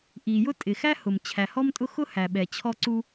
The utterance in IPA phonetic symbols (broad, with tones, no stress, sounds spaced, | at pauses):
ʔ i˩ j ʊ˥ tʼ ɪ˩ x æ˥ h ʊ˩ m t͡ɕʰ æ˩ h ɔ˥ m tʼ ʊ˥ x ʊ˥ h æ˩ ɓ ɛ˩ t͡ɕʰ ɔ˥ ǀ u˥